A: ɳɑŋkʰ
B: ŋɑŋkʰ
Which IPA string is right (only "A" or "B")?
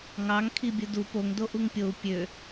B